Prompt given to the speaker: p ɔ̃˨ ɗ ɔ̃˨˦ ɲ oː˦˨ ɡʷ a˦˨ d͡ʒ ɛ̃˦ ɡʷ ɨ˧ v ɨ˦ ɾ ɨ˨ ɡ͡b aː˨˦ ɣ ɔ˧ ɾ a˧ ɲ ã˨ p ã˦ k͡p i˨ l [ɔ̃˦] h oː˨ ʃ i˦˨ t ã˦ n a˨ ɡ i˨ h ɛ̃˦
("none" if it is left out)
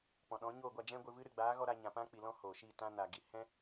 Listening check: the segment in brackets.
ɔ̃˦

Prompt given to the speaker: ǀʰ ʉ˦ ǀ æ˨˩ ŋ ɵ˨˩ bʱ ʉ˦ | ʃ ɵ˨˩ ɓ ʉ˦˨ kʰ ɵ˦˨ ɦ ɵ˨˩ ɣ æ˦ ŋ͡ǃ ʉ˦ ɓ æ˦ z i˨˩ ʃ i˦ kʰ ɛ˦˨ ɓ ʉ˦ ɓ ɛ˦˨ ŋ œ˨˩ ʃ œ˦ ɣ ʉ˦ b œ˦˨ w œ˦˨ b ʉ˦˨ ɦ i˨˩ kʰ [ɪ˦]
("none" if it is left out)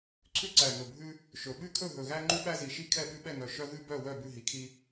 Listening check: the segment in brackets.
i˦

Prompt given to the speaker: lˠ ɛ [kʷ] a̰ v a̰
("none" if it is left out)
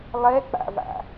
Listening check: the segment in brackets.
k͡p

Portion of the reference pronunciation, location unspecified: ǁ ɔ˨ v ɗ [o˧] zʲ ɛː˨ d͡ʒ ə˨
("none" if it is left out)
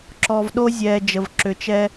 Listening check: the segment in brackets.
o˧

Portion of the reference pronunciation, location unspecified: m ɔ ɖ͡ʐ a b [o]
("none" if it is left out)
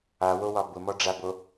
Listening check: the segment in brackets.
o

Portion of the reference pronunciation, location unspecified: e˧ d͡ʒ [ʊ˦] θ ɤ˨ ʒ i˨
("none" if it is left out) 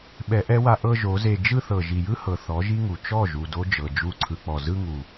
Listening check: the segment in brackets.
ɯ˦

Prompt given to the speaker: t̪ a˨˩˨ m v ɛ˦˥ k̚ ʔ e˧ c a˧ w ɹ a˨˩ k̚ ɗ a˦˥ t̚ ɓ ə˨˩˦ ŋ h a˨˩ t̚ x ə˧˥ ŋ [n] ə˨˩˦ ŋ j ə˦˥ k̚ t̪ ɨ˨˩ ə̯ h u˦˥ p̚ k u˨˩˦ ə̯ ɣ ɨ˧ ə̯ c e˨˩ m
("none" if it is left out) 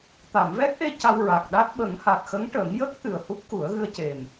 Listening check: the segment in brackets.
ʈ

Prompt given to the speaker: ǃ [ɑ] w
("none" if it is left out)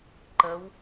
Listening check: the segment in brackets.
ə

